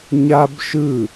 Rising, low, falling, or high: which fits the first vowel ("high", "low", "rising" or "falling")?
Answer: high